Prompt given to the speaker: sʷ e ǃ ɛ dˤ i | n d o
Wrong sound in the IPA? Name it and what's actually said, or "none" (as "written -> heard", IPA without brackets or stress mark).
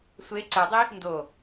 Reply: ǃ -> ǀ